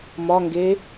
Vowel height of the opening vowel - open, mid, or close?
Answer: open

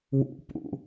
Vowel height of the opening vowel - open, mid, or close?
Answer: close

